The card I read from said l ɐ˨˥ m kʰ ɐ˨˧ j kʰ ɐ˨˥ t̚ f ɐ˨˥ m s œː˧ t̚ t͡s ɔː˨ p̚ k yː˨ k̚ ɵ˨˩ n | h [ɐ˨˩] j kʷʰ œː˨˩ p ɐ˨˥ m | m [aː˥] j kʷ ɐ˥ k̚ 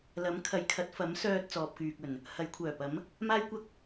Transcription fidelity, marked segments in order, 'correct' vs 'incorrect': incorrect, correct

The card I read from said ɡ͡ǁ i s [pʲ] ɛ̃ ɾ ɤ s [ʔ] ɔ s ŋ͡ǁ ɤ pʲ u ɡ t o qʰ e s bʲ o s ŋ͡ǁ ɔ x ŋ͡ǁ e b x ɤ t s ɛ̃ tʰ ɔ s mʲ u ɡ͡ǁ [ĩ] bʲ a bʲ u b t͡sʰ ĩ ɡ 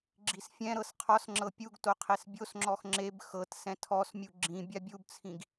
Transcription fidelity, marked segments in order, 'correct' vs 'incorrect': incorrect, incorrect, correct

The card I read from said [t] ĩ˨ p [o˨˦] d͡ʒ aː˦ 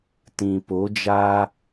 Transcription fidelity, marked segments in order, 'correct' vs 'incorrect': correct, correct

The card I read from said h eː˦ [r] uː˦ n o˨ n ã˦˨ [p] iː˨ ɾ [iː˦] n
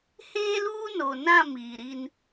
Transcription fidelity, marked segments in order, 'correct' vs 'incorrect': incorrect, incorrect, incorrect

